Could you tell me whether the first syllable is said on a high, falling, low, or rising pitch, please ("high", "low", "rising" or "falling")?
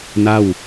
falling